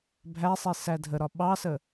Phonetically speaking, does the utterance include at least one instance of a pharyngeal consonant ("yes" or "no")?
no